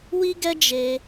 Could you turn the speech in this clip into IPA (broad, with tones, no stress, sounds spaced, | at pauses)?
w i˦ ɡ ɛ˦ d͡ʒ e˧